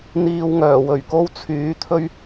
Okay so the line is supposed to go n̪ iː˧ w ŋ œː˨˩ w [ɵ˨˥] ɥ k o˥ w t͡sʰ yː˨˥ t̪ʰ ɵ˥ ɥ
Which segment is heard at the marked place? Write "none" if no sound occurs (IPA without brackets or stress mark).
ɵ˨˩